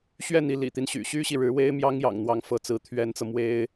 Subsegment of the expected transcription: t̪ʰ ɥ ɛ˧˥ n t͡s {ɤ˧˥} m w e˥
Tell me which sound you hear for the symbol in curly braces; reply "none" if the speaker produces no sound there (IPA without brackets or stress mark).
ɤ˧